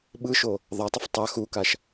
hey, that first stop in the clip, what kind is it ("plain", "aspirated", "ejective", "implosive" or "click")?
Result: implosive